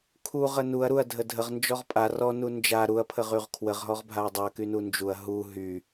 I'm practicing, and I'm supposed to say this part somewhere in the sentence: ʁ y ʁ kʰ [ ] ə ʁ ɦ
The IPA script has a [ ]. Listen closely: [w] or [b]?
w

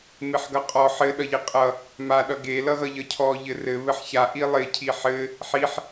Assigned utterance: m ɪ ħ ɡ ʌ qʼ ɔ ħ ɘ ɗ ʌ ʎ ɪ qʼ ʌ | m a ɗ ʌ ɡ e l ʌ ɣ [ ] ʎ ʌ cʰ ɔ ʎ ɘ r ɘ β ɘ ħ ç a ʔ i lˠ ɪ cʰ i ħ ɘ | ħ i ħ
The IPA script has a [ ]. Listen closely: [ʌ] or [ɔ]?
ʌ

